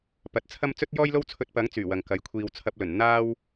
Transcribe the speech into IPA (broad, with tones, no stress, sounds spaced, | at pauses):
p ɐ˨˥ t̚ t͡sʰ ɐ˥ m t͡s ɵ˥ t̚ j ɔː˥ j l o˥ w t͡sʰ ɵ˧ t̚ p ɐ˨˥ ŋ t͡s yː˨˩ w ɐ˨ ŋ k ɐ˨˥ j kʷʰ iː˧ w t͡sʰ ɐ˧ p̚ l ɵ˨˩ n n̪ aː˥ w